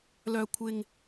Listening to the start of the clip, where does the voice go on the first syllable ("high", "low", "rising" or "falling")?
low